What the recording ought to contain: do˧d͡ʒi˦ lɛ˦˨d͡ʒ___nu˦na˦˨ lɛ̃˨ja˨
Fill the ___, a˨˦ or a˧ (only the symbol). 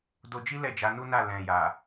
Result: a˨˦